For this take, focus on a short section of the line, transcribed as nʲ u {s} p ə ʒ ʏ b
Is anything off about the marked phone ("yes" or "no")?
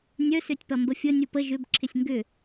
yes